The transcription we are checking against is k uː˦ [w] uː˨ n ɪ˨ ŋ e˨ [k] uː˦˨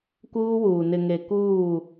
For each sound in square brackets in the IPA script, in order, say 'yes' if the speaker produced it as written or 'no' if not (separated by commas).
yes, yes